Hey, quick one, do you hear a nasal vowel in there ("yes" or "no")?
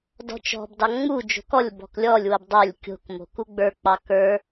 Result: no